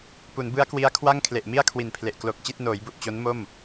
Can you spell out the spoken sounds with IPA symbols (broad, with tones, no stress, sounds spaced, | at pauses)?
p u˩˦ n b ɯ˦˥ a̯ k w i˦˥ a̯ kʰ w a˥˩ ŋ kʰ l e˨˩ ʔ m i˥˩ a̯ kʰ w i˨˩ n pʰ l e˨˩ ʔ k l o˨˩ k̚ t͡ɕ i˥˩ t̚ n oː˩˦ j b u˨˩ ʔ t͡ɕ o˦˥ n m o˥˩ m